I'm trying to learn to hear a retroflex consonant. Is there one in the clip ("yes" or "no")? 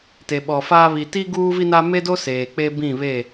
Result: no